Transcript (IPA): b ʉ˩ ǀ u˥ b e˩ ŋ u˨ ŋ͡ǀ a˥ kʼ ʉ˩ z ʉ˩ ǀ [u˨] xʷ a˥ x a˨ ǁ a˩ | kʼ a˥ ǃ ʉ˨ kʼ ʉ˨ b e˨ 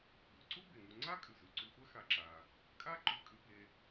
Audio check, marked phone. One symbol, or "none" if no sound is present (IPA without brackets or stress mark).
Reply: u˨